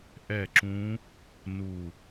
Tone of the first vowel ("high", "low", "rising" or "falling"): falling